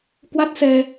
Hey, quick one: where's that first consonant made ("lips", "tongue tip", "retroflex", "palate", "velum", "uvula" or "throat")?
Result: velum